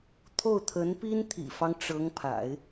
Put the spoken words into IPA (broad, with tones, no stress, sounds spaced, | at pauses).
t̪ʰ o˥˩ ʊ̯ t̪ʰ ə˧˥ n p i˥ n t̪ʰ ḭ˨˩ f ɑ˦ ŋ ʈ͡ʂ ɤ˧˥ ŋ pʰ a̰˨˩˦ ɪ̯